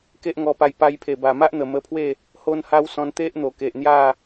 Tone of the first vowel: high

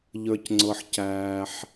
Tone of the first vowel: low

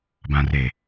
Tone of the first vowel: low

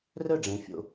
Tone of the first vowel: falling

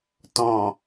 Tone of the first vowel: low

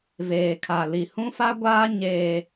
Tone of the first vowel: low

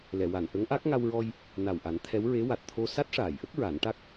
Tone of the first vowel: low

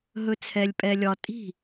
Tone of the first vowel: low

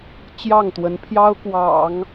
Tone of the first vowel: falling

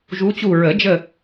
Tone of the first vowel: rising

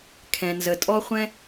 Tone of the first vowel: low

